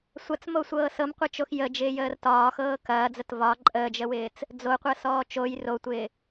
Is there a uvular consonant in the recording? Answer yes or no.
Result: yes